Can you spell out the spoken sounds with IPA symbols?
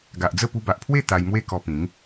ɡ a˨ ʔ d͡z ə˥˧ p u˧ b a˨ ʔ pʰ w e˥˧ t̪ a˧ j m w e˦ k ɔ˧ p ĩ˨˦ ŋ

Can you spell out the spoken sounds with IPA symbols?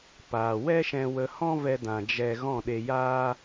p aː˨ w ɛ˦ ʃ ɛ̃˧ w ə˧ h ɔ̃˦ v ɛ˧ d ã˨ d͡ʒ ɛ˧ ɣ ɔ̃˦˨ ɗ e˧ j aː˦

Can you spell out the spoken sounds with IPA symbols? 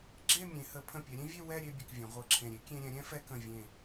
ɡ͡ǁ e˥˧ mʲ ẽ˩˧ h ə˩˧ pʰ ə̃˧˩ pʲ ɛ˩˧ ɾʲ ẽ˥ vʲ e˥˧ w ɛ˥˧ ɾʲ e˥˧ bʲ ə˧˩ k vʲ ə̃˩˧ ʁʷ ɤ˧˩ ǁʰ ẽ˧˩ ɾʲ e˥ kʲ ẽ˧ ɾʲ ɛ̃˩˧ ɾʲ ɛ̃˥ f ɛ˧ k ə̃˧˩ vʲ ẽ˧˩

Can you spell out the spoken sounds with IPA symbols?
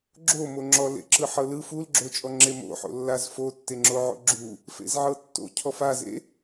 ɡ͡ǁ o m o ŋ͡ǁ ɔ l ḛ ǁ ɯ ħ ɤ l ɯ f u l ɡ͡ǁ o t͡ʃʼ ɔ ŋ͡ǁ e m o̰ ħ o̰ lː a z f o tː e ŋ͡ǁ o ʕ o̰ ɡ͡ǁ u | f ḛ z ʕ ɤ tː o̰ cʰ ɔ f a z ḛ

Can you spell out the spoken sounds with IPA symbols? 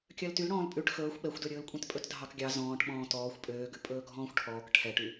kʲ œ l t y l ɽ ɔ̃ː l pʼ ʉ ʈ x ɵː xʷ ɓ ɛ xʷ d ø ɾʲ ɵː l kʷʼ ẽ t pʼ ɵ t dʱ ɑ k ɡʲ ɑ z ɔ̃ː ʈ ɓ ɔ̃ː t ɔː xʷ pʼ øː ɡ ʉ pʼ ɵː ɡʱ ɔ̃ː xʷ ʈʰ ɔː k ʈʰ ɛ ʈ y

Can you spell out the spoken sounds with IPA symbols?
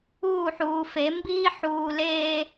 uː˦˨ ħ uː˨ f e˨˦ m b iː˦ ħ uː˨ l eː˦

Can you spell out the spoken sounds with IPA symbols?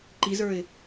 ǃ i z ə˞ ɪ̯

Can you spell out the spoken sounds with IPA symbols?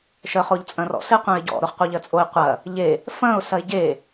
ʃ œ χ o ʎ t͡sʼ ɐ̃ r ɔ̰ s e qʷ œ̃ ɪ̯ ɟ ɔ̰ ɾ o χ qʷ œ ʎ ɜ t͡sʼ o ɪ̯ qʷ ɐ | ʎ e | f ɐ̃ ʊ̯ s ɐ ɪ̯ ɟ e

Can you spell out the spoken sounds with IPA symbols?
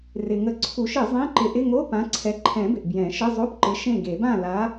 r ɪ˩ ŋ ə˨˥ ǀʰ u˨˩˦ ʃ ɪ˨˩˦ zˤ ẽ˧˥˧ ǃ ɪ˨˥ ʔ ɪ˧˥˧ ŋ o˧˥˧ p ã˨˥ ǀʰ ɛ˨˥ ǃʰ ɛ̃˨˩˦ b ɪ˩ ʔ b j ɛ̃˨˩˦ ʃ ə˧˥˧ zˤ o˧˥˧ p ǃ ɪ˨˥ ʃ ẽ˥˨ ɡ e˨˩˦ b ã˥˨ l a˨˥

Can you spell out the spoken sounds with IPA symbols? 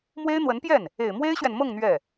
m w e˥ ɪ̯ n̪ w ə˧˥ n p j ɛ˥˩ n | e˨˩ ɪ̯ m w e˥ ɪ̯ ɕ ɥ ɛ˨ n m ɤ˥˧ ŋ n̪ ɥ ɛ˥˩

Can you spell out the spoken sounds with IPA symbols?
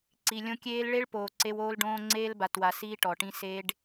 ǀ i˨ lʲ õ˦ kʲ eː˦ l ɭ e˦ ɭ p oː˨ ǀ e˦ w oː˦ l ɖ õː˦ ŋ͡ǀ eː˦ l b a˨ t w a˨ s iː˦ ʈ ɔ˨ ʈ ĩ˦ s e˦ ɖ

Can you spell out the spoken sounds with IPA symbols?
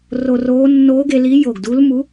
r o˧ r oː˧˥ nː oː˧˥ ɡ e˧ l i˧˥ j o˧˩ ɡ d u˧˥ l m u˧˥

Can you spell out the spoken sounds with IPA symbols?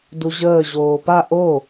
d u ʑ əː ʑ oː p a ʔ o

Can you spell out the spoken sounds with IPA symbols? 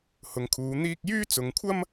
h ʊ˨ ŋ kʰ uː˨˧ n̪ iː˧ k̚ j yː˥ t͡s ʊ˨˧ ŋ kʷʰ ɐ˥ m

